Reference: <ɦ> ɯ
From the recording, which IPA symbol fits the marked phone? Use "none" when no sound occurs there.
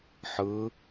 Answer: ħ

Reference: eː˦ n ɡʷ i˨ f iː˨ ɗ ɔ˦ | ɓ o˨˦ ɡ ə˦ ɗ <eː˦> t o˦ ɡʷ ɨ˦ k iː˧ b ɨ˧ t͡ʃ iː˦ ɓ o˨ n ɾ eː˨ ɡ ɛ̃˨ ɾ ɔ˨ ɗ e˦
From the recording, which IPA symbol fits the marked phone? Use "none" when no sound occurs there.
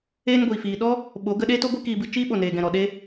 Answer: eː˦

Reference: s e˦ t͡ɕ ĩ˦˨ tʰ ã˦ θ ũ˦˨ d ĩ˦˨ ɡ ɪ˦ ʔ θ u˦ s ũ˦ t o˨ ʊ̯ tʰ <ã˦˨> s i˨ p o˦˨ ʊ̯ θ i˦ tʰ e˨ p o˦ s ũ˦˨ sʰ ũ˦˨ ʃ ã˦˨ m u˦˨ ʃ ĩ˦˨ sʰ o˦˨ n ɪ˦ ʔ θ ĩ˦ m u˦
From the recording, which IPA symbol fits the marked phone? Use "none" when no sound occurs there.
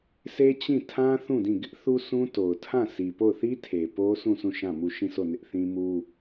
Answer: ã˦˨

